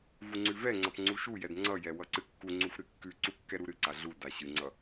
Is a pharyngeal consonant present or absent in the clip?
absent